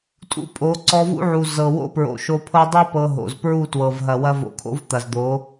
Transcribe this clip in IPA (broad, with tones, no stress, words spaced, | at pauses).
tʼṵ˦pʼo˨˦ ǀɔ˧vṵ˦ʕu˨ zɤ˨ wo̰˦pɹo̰˨ʃo˧pʰɤ˦ dˤu˦ pɤ˧ɦo̰˨z pɹu˦˨twɤ˨vɦɐ˨ wɐ˦vo̰˧ kʰo̰˦vt̪ɐ˨zd̪o˨˦